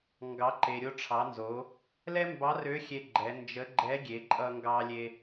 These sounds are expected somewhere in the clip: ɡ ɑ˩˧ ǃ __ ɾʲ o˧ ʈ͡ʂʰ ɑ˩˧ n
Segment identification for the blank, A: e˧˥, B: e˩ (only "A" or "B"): B